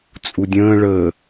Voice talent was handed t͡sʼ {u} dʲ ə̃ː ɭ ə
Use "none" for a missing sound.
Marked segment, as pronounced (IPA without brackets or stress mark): u